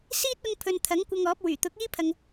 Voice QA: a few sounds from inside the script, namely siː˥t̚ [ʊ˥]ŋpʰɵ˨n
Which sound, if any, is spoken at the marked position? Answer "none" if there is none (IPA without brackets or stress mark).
ʊ˧